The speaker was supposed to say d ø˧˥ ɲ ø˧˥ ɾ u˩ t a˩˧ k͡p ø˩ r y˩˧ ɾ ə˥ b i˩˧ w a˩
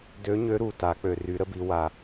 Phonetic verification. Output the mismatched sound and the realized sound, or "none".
none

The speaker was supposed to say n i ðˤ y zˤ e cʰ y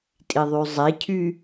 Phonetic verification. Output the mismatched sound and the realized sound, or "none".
n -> tʼ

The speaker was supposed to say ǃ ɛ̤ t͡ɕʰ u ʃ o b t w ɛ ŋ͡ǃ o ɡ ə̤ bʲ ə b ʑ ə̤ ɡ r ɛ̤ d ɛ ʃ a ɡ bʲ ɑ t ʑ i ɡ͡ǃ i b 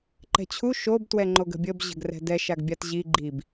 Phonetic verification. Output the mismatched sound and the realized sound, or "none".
ɑ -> a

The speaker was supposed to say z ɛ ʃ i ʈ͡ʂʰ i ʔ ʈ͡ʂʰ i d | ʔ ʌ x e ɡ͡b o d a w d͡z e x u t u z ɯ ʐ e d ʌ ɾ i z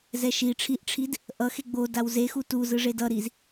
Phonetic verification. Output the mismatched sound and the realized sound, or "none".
d͡z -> z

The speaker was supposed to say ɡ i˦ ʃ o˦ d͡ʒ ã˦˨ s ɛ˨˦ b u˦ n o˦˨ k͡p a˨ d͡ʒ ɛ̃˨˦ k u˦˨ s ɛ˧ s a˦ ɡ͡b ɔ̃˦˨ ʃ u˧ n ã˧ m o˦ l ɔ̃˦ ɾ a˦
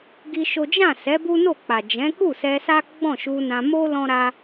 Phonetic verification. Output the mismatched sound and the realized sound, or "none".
none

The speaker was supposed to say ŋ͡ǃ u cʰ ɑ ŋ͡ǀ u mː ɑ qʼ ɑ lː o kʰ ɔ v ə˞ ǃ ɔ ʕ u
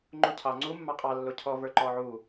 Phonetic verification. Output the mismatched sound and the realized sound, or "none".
kʰ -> cʰ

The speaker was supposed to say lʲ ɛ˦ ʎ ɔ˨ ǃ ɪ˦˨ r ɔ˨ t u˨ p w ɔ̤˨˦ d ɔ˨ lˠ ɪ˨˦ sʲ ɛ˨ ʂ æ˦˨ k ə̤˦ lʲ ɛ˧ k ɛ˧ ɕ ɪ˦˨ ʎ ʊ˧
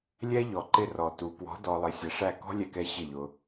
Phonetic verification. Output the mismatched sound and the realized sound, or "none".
ə̤˦ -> ɔ̤˦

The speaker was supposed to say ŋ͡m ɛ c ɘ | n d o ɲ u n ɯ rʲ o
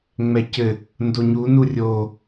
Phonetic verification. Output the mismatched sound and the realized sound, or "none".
ɯ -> u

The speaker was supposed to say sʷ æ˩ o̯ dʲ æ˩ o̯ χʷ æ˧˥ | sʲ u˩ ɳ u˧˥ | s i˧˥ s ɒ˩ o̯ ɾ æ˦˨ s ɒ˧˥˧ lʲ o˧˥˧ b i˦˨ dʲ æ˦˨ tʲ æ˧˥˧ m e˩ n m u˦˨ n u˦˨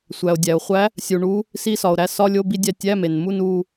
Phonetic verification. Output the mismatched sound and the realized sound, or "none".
none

